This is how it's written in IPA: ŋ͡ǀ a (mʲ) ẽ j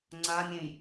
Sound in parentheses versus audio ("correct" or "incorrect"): correct